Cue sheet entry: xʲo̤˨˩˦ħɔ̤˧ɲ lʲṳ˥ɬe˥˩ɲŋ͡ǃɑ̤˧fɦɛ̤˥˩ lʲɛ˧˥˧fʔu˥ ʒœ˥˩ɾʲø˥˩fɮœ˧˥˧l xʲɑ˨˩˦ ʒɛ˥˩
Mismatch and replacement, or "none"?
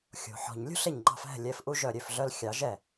none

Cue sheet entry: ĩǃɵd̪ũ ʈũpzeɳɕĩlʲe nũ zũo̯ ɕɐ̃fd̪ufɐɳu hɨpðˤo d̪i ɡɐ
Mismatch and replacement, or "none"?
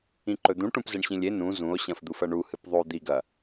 none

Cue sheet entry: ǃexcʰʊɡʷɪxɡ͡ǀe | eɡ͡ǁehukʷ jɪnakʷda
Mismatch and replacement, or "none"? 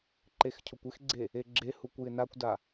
ɡʷ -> kʷ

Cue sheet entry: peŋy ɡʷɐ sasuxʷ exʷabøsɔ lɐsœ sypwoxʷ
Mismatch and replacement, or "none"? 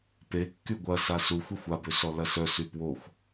ŋ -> kː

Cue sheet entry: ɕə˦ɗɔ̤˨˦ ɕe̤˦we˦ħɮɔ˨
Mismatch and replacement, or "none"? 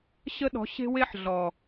none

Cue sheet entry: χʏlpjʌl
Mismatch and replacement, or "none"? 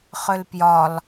ʌ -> ɒ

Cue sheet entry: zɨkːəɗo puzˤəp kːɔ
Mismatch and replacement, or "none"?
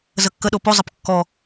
ɨ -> ə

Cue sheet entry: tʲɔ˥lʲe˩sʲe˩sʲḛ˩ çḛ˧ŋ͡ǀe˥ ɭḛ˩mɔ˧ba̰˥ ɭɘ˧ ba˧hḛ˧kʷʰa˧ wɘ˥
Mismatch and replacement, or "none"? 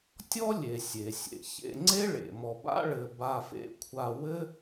h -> f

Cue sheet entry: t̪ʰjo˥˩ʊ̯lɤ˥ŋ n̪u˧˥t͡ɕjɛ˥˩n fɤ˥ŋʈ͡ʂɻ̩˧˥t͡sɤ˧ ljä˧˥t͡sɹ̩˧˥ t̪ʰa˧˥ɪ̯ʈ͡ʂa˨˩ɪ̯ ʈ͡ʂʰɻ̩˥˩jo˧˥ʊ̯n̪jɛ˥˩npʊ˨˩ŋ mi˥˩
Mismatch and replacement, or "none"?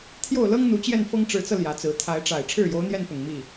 none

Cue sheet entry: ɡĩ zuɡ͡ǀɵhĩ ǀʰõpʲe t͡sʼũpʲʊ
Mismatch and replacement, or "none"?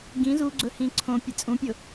none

